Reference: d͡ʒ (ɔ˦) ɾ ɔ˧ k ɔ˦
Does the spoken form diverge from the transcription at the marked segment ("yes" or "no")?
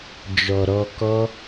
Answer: yes